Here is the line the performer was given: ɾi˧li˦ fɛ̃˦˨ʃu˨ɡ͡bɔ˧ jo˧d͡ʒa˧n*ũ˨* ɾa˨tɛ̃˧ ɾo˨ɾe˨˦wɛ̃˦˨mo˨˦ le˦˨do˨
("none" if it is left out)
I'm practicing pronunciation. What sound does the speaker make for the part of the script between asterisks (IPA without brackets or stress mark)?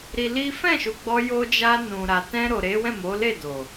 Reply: ũ˨